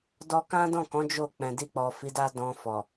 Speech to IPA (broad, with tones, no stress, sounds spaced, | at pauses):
d ɔ˧ k ã˦ d ɔ̃˦˨ k ɔ̃˨˦ d͡ʒ o˦˨ k͡p ɛ̃˨ d i˧ k͡p ɔ˨ f i˨˦ d a˦ d ɔ̃˧ f ɔ˨